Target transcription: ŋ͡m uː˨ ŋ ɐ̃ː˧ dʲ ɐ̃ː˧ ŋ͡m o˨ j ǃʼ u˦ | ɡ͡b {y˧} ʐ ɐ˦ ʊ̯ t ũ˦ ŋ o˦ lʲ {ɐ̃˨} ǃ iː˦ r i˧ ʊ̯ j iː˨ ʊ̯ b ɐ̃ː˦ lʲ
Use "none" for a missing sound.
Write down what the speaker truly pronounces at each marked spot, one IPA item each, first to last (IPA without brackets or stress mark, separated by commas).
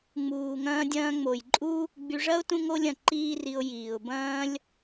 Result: y˧, ɐ̃˨